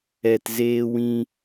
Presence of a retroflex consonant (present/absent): absent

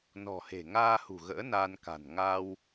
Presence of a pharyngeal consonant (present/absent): absent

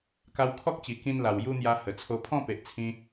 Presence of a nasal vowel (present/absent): present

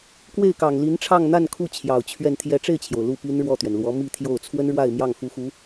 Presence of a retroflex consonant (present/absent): present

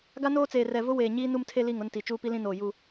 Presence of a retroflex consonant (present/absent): absent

